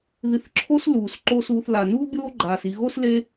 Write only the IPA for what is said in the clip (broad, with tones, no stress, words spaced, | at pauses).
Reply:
ði˨θǁʰoː˦s luː˩sǃo˦ suː˨θla˩nuː˥ bʲoː˥ɡ͡ǃaː˩si˨ ɣo˥sle˦